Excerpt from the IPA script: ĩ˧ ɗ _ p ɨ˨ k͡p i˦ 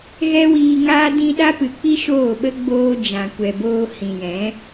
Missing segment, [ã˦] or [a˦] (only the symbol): a˦